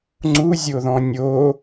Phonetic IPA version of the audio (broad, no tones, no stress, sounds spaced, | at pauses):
ŋ͡ǀ u zʲ o ð ɔ̃ nʲ o